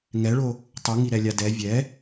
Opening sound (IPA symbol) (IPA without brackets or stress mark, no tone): ŋ